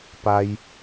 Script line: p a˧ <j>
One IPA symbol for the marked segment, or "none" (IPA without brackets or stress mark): j